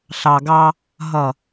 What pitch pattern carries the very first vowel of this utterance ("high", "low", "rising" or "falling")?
low